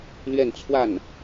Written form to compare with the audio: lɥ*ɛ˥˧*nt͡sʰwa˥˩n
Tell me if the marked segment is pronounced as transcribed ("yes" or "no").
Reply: yes